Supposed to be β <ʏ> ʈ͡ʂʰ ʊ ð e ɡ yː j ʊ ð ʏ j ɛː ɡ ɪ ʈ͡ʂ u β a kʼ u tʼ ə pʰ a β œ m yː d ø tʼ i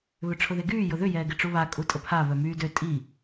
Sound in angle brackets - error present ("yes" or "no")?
no